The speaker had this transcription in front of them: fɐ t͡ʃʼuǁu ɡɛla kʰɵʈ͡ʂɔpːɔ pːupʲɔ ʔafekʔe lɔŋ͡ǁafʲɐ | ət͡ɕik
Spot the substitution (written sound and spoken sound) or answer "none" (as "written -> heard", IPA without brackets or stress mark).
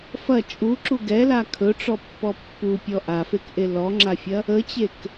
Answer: i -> e